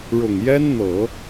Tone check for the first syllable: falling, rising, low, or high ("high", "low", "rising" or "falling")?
low